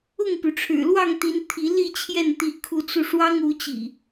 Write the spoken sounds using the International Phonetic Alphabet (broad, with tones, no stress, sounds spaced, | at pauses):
ʊ˥˨ ŋ p y˩ ʈ͡ʂʰ ɻ̩˨˩ l w ɑ˥˨ ŋ t̪ i˨˦ n t̪ʰ i˨˦ l i˥˨ t͡ɕʰ j ɛ˥˨ n t̪ i˨˦ kʰ u˨˦ t͡s u˧ ʂ w ɑ˦ ŋ u˨˦ t͡ɕ ḭ˨˩